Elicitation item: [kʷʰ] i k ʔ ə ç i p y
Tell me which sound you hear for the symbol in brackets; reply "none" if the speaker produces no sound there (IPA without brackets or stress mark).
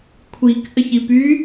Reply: kʷʰ